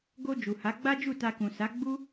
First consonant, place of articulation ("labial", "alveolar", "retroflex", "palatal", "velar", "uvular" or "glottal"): velar